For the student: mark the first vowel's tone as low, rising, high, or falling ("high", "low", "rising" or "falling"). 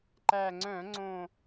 low